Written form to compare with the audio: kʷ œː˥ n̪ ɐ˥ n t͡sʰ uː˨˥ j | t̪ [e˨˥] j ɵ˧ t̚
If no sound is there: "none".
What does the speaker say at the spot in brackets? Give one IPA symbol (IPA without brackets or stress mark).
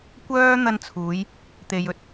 e˨